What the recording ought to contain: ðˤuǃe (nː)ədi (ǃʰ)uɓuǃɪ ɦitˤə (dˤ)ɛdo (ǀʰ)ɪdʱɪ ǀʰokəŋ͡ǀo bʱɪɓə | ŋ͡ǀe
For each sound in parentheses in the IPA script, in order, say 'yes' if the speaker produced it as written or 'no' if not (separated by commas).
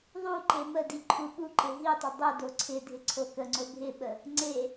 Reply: no, yes, yes, yes